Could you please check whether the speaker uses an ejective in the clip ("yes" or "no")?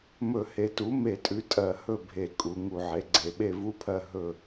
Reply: yes